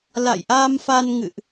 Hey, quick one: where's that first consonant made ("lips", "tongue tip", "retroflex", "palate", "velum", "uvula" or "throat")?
tongue tip